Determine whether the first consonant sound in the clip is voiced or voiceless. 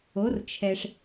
voiced